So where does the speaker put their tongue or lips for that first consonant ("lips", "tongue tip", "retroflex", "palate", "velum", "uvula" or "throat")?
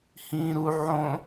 throat